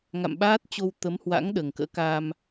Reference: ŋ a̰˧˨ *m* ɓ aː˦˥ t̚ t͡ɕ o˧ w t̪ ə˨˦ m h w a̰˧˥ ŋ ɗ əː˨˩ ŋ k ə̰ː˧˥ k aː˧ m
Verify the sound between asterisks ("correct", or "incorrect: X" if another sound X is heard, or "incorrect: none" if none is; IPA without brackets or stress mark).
correct